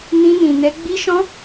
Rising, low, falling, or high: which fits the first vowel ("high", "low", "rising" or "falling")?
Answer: high